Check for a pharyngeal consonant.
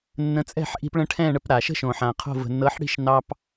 present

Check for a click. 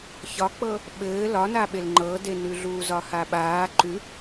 present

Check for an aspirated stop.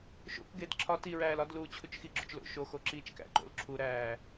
present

